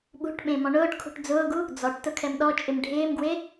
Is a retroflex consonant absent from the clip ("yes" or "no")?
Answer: no